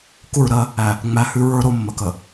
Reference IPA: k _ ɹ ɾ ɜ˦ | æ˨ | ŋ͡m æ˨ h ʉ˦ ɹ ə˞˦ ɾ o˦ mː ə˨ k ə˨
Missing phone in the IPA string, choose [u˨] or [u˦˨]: u˦˨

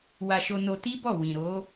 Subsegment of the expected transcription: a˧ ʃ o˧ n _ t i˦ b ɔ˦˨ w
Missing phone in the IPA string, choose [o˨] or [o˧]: o˧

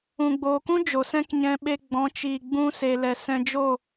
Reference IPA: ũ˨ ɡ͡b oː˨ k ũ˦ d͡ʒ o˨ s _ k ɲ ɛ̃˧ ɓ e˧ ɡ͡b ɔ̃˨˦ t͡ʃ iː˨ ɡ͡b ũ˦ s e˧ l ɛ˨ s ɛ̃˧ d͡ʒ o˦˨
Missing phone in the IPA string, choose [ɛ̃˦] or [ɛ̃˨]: ɛ̃˦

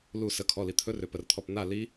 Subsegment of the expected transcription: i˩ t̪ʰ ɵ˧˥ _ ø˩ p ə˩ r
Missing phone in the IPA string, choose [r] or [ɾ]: r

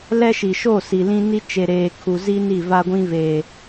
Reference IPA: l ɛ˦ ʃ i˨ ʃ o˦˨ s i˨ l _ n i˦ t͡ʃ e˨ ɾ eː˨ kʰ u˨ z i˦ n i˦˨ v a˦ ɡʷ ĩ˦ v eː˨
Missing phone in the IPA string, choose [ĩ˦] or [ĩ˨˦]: ĩ˦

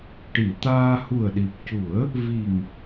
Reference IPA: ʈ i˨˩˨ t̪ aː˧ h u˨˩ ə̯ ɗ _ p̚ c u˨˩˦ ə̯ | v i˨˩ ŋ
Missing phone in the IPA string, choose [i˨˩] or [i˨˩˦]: i˨˩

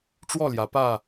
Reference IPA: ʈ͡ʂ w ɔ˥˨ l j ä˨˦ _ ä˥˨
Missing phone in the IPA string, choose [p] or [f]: p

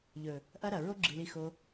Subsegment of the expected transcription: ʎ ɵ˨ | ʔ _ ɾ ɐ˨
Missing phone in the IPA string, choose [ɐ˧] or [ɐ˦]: ɐ˦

